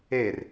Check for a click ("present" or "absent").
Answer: absent